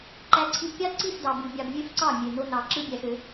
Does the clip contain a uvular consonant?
no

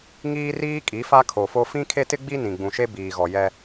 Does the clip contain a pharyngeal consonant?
no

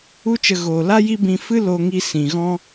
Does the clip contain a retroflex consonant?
no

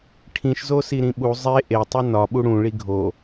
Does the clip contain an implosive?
yes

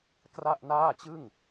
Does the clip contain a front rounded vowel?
no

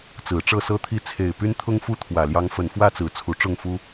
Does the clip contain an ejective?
no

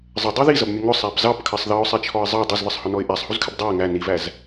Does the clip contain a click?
no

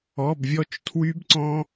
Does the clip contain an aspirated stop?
yes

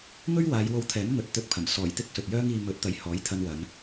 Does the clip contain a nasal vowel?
no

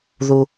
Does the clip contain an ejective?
no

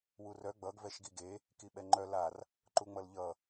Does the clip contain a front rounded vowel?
yes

